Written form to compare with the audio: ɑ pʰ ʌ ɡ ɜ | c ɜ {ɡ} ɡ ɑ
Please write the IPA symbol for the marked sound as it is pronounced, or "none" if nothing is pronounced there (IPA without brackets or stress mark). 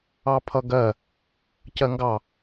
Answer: ŋ